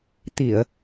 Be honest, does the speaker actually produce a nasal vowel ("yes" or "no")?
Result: no